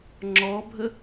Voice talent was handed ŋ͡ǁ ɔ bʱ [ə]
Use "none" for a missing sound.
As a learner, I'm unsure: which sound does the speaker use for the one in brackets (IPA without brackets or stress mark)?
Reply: ə